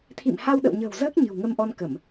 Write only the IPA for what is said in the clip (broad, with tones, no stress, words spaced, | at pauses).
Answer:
t̪ʰḭ˧˨mha˧wɗə̰˧˨wɲə̤ː˨˩w zəː˦˥k̚ ɲɨ̤˨˩wŋə˧mʔɔ˧nkə˧˩˨m